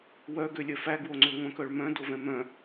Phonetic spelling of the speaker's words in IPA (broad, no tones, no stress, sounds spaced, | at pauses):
w œ ɡ ø lʲ œ f æ ɡ w o ŋ͡ǀ ø ŋʷ œ̃ k œ ɭ m œ̃ d o v ɛ̃ m œ̃